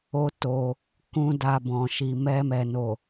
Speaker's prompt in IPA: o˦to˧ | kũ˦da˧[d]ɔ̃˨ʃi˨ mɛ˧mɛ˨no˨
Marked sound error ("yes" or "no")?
yes